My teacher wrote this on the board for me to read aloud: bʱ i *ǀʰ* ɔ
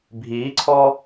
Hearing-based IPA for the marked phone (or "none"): ǀʰ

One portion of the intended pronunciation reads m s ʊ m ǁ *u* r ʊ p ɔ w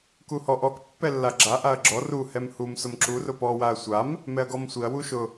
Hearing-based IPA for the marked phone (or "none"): u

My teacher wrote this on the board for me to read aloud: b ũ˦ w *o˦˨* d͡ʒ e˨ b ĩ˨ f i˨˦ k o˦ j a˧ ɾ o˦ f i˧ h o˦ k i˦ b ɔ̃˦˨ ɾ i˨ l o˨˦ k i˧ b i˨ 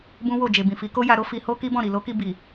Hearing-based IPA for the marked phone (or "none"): o˦˨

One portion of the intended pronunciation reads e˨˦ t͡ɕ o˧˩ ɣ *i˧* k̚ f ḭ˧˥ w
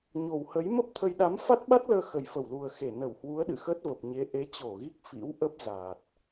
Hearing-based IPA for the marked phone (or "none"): i˦˥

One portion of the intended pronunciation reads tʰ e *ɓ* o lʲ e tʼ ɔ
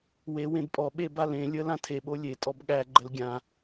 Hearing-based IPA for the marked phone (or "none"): ɓ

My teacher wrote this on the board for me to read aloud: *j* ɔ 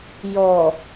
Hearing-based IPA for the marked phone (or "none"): j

